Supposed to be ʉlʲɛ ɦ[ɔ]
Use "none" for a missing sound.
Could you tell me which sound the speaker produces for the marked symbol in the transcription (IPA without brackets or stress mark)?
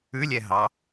ɑ